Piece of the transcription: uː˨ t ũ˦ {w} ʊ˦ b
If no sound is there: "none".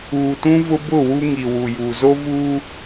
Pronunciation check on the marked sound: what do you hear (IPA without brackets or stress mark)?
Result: v